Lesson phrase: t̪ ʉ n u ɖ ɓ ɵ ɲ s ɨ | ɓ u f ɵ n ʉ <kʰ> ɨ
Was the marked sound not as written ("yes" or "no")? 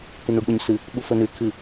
no